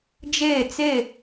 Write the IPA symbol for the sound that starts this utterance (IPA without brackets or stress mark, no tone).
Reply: d͡ʒ